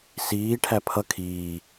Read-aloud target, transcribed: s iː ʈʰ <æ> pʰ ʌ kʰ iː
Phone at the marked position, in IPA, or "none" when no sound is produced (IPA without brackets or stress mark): æ